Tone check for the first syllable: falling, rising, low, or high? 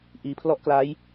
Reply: low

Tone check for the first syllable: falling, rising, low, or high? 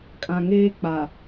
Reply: low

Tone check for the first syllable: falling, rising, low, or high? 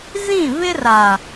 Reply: falling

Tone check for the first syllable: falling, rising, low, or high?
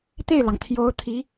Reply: falling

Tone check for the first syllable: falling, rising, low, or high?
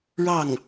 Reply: falling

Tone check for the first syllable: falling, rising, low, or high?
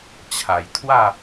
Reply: low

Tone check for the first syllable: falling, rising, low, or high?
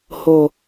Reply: low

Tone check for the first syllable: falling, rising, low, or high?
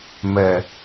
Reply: low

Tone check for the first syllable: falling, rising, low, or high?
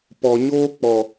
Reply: low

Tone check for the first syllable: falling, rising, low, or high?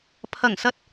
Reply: low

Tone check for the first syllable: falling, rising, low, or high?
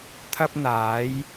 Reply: high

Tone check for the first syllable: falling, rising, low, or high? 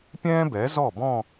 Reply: high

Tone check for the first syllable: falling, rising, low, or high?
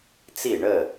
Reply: falling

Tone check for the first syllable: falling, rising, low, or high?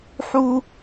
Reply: high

